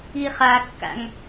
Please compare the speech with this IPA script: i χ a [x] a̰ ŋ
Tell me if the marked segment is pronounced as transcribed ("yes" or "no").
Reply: no